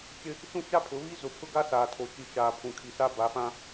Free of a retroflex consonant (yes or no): yes